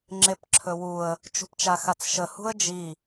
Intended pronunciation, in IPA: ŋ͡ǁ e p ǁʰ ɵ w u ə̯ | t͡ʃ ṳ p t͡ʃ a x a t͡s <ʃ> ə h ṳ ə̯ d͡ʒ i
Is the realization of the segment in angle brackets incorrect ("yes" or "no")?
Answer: no